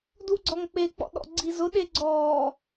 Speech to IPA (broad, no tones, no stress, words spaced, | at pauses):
duɡ͡ǀɔŋk͡pe k͡pɔ̰ɗɔ̰ɡ͡ǀizʊ ɗeɡ͡ǀɔː